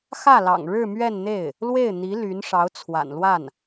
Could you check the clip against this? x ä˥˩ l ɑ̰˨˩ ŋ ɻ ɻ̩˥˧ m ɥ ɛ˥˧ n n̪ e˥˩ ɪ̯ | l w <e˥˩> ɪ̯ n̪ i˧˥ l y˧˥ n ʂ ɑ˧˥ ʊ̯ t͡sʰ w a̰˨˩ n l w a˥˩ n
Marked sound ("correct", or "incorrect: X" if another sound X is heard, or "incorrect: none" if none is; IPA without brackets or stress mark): correct